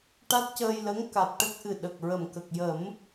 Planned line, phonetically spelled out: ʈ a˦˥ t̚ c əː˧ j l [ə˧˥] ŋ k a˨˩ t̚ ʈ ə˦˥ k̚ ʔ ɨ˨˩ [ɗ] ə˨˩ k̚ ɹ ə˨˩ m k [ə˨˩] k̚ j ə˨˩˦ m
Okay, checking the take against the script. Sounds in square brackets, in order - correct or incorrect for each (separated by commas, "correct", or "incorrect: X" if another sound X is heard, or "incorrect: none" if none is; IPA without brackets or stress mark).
correct, correct, correct